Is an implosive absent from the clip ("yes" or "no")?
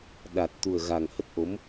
no